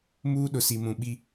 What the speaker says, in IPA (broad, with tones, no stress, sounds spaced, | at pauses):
m uː˦ ɗ ʊ˨ s i˨ m ũ˨ ɓ i˦